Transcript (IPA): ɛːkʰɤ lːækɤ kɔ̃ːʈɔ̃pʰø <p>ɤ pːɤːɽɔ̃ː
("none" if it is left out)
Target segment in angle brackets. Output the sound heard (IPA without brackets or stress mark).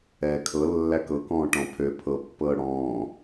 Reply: pʰ